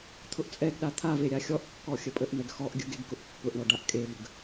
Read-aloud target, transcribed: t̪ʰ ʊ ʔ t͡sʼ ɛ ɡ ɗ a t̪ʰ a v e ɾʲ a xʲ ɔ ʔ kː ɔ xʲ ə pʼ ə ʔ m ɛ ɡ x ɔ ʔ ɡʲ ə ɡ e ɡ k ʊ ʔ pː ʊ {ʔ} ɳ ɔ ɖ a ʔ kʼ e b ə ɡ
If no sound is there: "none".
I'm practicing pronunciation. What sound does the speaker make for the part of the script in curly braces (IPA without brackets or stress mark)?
ʔ